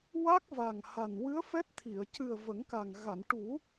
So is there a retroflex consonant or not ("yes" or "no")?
yes